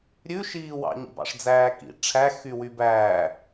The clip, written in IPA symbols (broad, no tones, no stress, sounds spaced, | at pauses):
ɾʲ ʉ ʃ iː w ɑ̰ ɲ ḭ b ɑ̰ ʂ d͡z æː k ḭ ʈ͡ʂʰ æ x y w y b æː